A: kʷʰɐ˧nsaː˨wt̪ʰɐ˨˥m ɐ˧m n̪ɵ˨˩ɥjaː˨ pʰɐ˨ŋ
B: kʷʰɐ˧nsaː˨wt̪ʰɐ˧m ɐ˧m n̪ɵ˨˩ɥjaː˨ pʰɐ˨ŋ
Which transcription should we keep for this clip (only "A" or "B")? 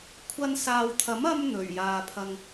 A